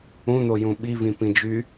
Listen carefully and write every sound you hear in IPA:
ũ n̪ o j ũ ɓ i v ĩ p ĩ d͡ʒ y

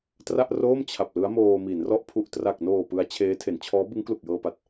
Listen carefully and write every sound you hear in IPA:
t r a˥˩ ʔ r oː˥˩ m t͡ɕʰ a˨˩ p̚ l ɯ˦˥ a̯ m oː˧ m i˩˦ n r ɔ˦˥ ʔ pʰ u˨˩ ʔ t r a˨˩ k̚ n oː˨˩ p ɯ˦˥ a̯ t͡ɕʰ eː˦˥ tʰ e˩˦ n t͡ɕʰ ɔː˦˥ b ɯ˦˥ ŋ k l u˨˩ k̚ j ɤː˧ p a˨˩ t̚

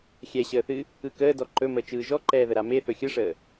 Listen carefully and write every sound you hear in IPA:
xʲ ɛ ɕ əː θ ɨ | ɯ k əː d ɔ ǃ ɵ m əː t͡ʃ ɯː ʒ ɔ ǃ ɛː ð ə ɾ a m e θ ɵ xʲ ɯ ʂ əː

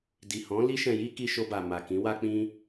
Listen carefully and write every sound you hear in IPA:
d i˨ h ɔ̃˨˦ l i˧ ʃ ɛ̃˨ j i˧ k i˧ ʃ o˧ b a˨ m a˨ k ĩ˨˦ w a˦ k͡p ĩ˦

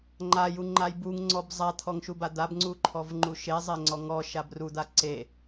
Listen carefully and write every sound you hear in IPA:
ŋ͡ǃ a j u ŋ͡ǃ a j b u ŋ ŋ͡ǀ ɔ b zˤ a t̪ʰ ɔ ŋ ʃ u b a d̪ a b ŋ͡ǀ u ǃʰ ɔ v ŋ͡ǃ u ʃ e zˤ e ŋ͡ǀ ɔ ŋ ɔ ʃ a b r u d̪ a ǀ e

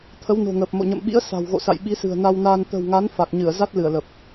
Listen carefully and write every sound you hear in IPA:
t̪ʰ ə˨˦ w n o̤˨˩ ŋ əː˨˩ p̚ m o̰˧˨ ɲ ə̰˧˨ m ɓ ḭ˧˥ ə̯ s a̤˨˩ w ɣ o̰˧˨ s a̰˧˨ j ɓ i˨˦ s ɨ̤˨˩ ə̯ n a˧ w n aː˧ n t̪ ə̤˨˩ w ŋ a˨˦ n f a˨˩ k̚ ɲ ɨ˧˩ ə̯ z a˦˥ t̚ l ɨ˧˩ ə̯ l ə˨˩ p̚

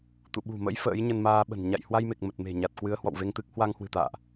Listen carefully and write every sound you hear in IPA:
t̪ ṵ˧˨ ɓ ṳ˨˩ m ə̰˧˥ j f ə̰ː˧˥ j ɲ ə˧ n m aː˧ ɓ ə̤˨˩ n ɲ a̰˧˨ j h w a˧ j m e˨˩ k̚ m ə˨˩ t̚ m e̤˨˩ ɲ a˨˩ t̚ k w ɨ˨˦ ə̯ h w ɔ̰˧˨ w v e˧ ŋ t̪ ɨ˦˥ k̚ h w a˧ ŋ h w ɨ̤˨˩ t̪ a̰ː˧˨ ʔ

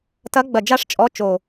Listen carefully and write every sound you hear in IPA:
t ɐ˧˥ ɡ͡b ɐ˧˩ d͡ʒ a˥˨ ʂ t͡ʃʼ ɔ˧˥ t͡ʃ o˧˩

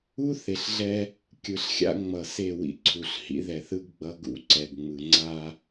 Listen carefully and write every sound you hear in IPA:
u˦ θ e˨ ɬ ɮ ɛ˦ | kʲ ɯ˨ ɬ xʲ a̰˦ ŋ͡m ʌ˨ s e˦˨ w ḭ˦ ǀʰ u˨ ɬ h ḭ˦ ð ɛ˨ θ ɯ˦ ɡ ɡ͡b ʌ˦ ɡ ṵ˦ ǀ ɛ˨ ɡ ŋ͡m ɯ˨ ŋ͡ǀ a˦

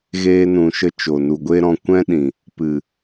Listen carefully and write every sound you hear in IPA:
ɣ eː˧ n ũ˨ ʃ ə˧ t͡ʃ o˨ n u˨ ɡʷ e˦ ɾ ɔ̃˧ kʷ ɛ̃˦ ɗ ĩ˨ | p ɨ˨

